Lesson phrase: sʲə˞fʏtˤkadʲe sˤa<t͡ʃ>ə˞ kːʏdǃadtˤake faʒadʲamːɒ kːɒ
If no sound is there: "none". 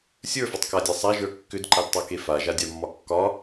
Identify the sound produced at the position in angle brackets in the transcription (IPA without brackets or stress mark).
ʒ